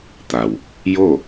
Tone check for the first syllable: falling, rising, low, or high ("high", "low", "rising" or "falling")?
low